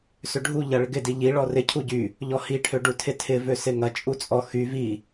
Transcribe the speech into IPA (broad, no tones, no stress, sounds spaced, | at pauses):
s ø ɖʱ u ʎ ɐ ɭ ɪ ɡ ɪ d i ʎ i ɭ ɔ r ɪ cʰ u ɟ y | ʎ ɔ h i ʈʰ ø ɖ u tʰ ɪ tʰ ɪ v ø s ɪ ŋ ɐ t͡ʃʼ u t͡sʼ ɔ x y v i